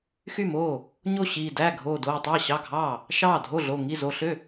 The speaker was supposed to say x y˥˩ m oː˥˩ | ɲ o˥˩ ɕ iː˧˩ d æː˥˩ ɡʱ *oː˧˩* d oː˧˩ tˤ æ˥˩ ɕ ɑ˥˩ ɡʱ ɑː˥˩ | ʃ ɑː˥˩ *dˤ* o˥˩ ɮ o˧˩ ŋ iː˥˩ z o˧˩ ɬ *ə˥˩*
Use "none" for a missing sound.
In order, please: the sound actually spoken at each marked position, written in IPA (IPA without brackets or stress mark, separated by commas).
oː˧˩, dʱ, ø˥˩